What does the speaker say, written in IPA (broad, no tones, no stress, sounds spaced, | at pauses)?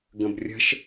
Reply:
ɡ ə̃ b rʲ ə̤ ʃ